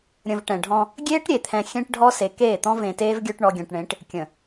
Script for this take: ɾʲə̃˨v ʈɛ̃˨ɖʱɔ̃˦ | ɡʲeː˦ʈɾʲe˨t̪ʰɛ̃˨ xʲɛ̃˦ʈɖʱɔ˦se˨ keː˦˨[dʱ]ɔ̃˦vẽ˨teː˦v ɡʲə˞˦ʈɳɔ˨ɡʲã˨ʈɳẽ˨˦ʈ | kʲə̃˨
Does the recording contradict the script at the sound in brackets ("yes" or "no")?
yes